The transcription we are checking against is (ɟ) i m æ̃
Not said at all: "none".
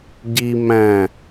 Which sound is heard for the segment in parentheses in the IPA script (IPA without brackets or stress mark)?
ɟ